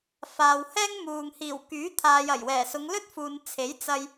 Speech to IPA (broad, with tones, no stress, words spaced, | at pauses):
faː˨whɛː˥ŋmuː˨ŋ hiː˨˩wkyː˨˥ t̪ʰaː˨jɐ˨˩j wɛː˨˩sʊ˨˧ŋlɵ˥t̚ fuː˨n t͡sʰe˨˥jt͡sɐ˧j